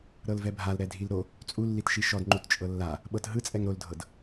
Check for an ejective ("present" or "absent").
present